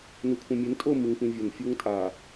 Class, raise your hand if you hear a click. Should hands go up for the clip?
no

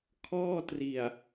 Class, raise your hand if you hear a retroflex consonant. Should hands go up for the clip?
no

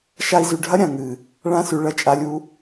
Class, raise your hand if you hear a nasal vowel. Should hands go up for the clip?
yes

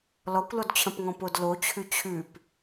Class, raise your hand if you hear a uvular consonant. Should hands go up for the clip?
no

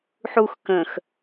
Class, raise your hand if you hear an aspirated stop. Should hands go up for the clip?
no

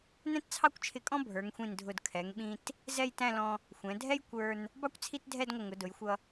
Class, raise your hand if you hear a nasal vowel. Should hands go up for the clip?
yes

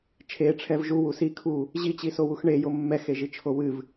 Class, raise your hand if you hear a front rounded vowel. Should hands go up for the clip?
no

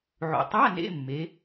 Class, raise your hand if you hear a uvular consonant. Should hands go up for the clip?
no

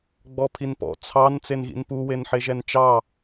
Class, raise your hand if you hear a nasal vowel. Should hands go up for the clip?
no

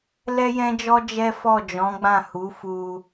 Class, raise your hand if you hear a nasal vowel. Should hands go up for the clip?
yes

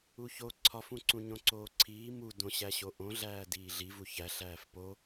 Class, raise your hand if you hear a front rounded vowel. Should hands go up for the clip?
no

